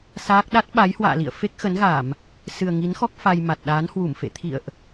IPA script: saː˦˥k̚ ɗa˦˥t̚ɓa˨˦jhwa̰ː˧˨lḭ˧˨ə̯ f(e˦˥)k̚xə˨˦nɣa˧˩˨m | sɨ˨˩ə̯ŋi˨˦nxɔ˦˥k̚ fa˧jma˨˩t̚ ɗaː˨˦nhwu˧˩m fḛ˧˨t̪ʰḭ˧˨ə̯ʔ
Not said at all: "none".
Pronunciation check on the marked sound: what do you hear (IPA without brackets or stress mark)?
e˦˥